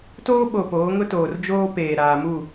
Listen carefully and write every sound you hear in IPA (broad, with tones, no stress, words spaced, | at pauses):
toː˦ ɓo˨ poː˨˦ŋʊ˦toː˨r d͡ʒoː˦peː˨ ɾaː˨mu˦˨